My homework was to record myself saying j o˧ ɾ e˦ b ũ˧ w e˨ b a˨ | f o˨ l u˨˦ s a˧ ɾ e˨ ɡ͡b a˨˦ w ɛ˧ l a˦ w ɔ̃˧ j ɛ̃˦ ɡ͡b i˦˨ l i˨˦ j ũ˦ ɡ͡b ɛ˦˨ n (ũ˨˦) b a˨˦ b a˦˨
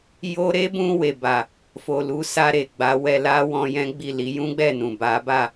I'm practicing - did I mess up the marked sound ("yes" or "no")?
yes